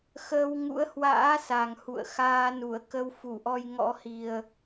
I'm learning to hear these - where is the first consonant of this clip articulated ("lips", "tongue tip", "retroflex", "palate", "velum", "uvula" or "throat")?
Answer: velum